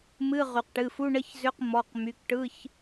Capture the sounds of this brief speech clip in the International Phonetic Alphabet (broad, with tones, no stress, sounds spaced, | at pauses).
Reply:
m ɨ˧˥˧ ʁ y˩ q ʈ ɨ˩˧˩ f u˧˥˧ ɳ ə˧˥˧ ç z ʏ˧˥˧ q m ɔ˩˧˩ q m y˩˧˩ k ʈ ɯ˧˥˧ ç